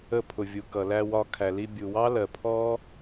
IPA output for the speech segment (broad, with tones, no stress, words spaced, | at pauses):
ə˧pʰʊ˩vʲu˩kʌ˩ læ˧wɒ˧ kʰæ˩li˧bʲu˩wɑ˥ lɜ˩pʰɔ˥